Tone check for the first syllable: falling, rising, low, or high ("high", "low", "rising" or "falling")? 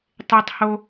high